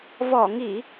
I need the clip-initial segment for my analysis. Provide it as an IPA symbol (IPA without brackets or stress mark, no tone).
v